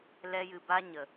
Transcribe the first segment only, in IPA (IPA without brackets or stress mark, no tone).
l